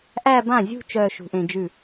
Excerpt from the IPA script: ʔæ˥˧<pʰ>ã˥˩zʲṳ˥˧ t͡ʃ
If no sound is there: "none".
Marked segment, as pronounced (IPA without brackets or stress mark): b